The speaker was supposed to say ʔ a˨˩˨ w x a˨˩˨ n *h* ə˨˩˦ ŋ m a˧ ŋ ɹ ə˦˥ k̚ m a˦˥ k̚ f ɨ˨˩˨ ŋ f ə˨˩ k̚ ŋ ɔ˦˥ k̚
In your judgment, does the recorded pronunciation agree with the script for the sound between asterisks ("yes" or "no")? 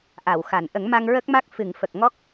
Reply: no